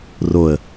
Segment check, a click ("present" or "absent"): absent